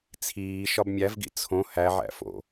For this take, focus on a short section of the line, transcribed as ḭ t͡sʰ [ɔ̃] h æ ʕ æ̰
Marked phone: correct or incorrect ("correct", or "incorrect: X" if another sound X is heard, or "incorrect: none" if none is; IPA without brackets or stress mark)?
incorrect: õ